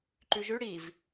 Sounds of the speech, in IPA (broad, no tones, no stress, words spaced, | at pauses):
ǃʉʒʉ ɽiv